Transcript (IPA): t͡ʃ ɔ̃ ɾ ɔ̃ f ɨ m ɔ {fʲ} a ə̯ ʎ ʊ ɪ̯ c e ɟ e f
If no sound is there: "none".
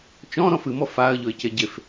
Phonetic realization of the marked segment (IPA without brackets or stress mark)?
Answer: f